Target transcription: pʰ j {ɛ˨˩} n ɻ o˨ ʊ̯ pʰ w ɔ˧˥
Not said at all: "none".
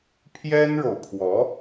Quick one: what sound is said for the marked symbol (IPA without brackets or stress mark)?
ɛ˥